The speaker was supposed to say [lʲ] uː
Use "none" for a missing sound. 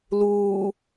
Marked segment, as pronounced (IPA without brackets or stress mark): l